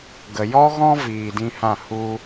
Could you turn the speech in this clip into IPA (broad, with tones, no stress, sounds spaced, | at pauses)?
ɡ ə˨ j ɔ˦ ɣ ɔ̃˦ v iː˧ d ĩ˦ h ã˦˨ h u˦